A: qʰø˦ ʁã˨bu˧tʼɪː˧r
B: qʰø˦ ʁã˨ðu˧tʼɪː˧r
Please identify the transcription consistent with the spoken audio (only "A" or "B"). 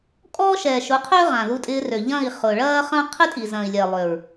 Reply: B